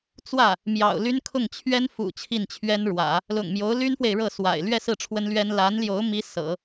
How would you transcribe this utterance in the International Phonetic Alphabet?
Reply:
t͡s w ä˥˩ | m j ɑ̰˨˩ ʊ̯ l y˥ n kʰ ʊ˥˩ ŋ t͡ɕʰ ɥ ɛ˥ n f ṵ˨˩ t͡ɕʰ i˥˩ n t͡ɕʰ ɥ ɛ˥ n ɻ w ä̰˨˩˦ | l ʊ̰˨˩ ŋ m j o˧˥ ʊ̯ l y˥ n f w e˨ ɪ̯ ɻ ɤ˥˩ s w a̰˨˩ ɪ̯ l ɥ ɛ˥˧ s ɹ̩˥˩ ʈ͡ʂʰ w ə˥ n l ɥ ɛ˥ n l a˧˥ n l j o˧˥ ʊ̯ m i˧˥ s ɤ̰˨˩˦

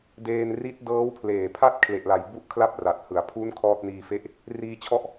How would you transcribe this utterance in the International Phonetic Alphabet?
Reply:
d eː˧ n r i˦˥ t̚ d ɤː˦˥ w pʰ l eː˨˩ pʰ a˥˩ t̚ kʰ l e˨˩ ʔ l a˨˩ j b u˦˥ ʔ kʰ l a˥˩ p̚ r a˨˩ t̚ h ɯ˩˦ a̯ pʰ u˦˥ n kʰ ɔː˥˩ t̚ n iː˧ f e˥˩ ʔ | r iː˧ t͡ɕʰ ɔ˥˩ ʔ

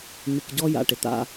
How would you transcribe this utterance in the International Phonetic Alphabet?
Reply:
m ɪ˨ k ɟ ɔ˦ j a̰˨ ʈ ɪ˨ t̪ a̰˦

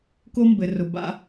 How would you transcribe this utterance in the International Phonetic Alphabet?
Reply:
k o˦ m b ɘ˨ r ʊ˨ b a̰˧

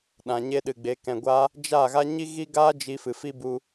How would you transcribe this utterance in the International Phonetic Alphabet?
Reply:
ɗ ã˨ ɲ e˧ ɗ ɨ˨ ɡ͡b e˨˦ k ɛ̃˨ ɡʷ aː˧ | d͡ʒ a˦˨ ɣ a˦ ɲ i˦ ɣ i˦ ɡ aː˦ d͡ʒ i˧ f ɨ˨ f i˦ b u˧

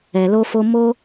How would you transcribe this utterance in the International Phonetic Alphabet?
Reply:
ɛ˨ l o˧ f o˧ m o˦

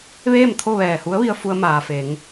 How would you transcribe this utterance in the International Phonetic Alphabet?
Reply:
ʋ eː˥˨ m t̪ʰ o˥˨ ʋ ɛː˧˩ h u˧˥ ə̯ ʋ i˧ ə̯ f u˧ ə̯ m aː˩ f e˩˧ ŋ

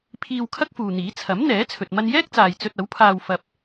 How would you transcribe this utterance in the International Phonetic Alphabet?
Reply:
pʰ iː˧ w kʰ ɐ˥ k̚ f uː˨ n̪ iː˨˥ t͡sʰ ɐ˨˥ m n̪ ɛː˨˥ t͡sʰ ɵ˨ t̚ m ɐ˧ n j ɛː˥ k̚ t͡s aː˨ j t͡s ɵ˧ t̚ ɐ˨˥ w pʰ aː˧ w f ɐ˧ p̚

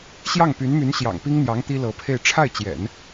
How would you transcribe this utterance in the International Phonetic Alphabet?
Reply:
ɕ j ɑ˥˩ ŋ p y˧˥ n m y˧˥ n ɕ j ɑ̰˨˩ ŋ p i˥ ŋ n̪ j ɑ˧˥ ŋ t̪ i˥ l ɤ˧˥ pʰ e˥˧ ɪ̯ ʈ͡ʂʰ a˥˩ ɪ̯ t͡ɕ j ɛ̰˨˩˦ n

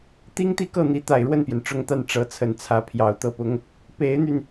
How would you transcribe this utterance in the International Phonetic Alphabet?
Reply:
t̪ i˥ ŋ t̪ i˥˧ k ɤ˥˩ n̪ i˧˥ t̪ a˨˩ ɪ̯ ɻ w ə˥˩ n p j ɛ˩ n ʈ͡ʂ ʊ˥˧ ŋ t̪ a˥˩ n ʈ͡ʂ ɤ˧˥ t͡sʰ ə˨˩ n t͡sʰ ä˧˥ pʰ j ɑ˨˩ ʊ̯ t̪ ɤ˥˩ p ʊ˥ ŋ | p e˧˥ ɪ̯ n̪ y˧ n

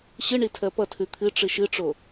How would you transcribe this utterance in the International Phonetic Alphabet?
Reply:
ɕ ɨ ɳ i tʰ ɜ p ʌ tʰ ʉ t̪ʰ ɨ ʈ͡ʂ ɨ ʃ ɨ ʈ͡ʂ o

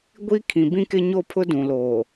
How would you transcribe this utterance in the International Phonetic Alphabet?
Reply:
ɡʷ i˦ kʰ ĩ˨ b ĩ˦ k ɪ˦ ɲ o˦ pʰ ʊ˦ d ũ˨ l oː˨

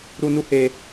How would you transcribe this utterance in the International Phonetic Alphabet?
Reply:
ɾ u˧ n u˦ h e˧

